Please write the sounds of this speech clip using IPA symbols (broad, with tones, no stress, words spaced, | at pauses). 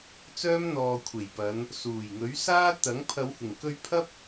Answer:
t͡sœː˥mn̪ɔː˨ kʷʰe˨˩jpɐ˨˧n | suː˨˩jŋɵ˨˥ɥsaː˥t̪ɐ˨˥ŋ pʰɐ˨˧whɪ˨˩ŋ kɵ˧ɥpʰɐ˥p̚